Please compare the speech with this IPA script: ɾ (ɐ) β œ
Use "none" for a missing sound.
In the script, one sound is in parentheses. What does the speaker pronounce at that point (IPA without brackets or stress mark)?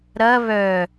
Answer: ɐ